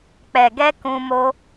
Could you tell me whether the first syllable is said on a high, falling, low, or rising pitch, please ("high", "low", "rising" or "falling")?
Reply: low